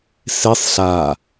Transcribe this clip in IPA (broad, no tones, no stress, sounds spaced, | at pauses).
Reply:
s e sˤ ɬ a